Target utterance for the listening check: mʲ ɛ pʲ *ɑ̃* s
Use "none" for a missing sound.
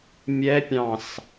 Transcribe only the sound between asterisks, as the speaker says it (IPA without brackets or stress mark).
ɑ̃